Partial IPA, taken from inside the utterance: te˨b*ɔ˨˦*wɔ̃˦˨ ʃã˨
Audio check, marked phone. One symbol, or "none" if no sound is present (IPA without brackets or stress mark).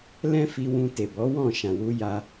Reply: ɔ˨˦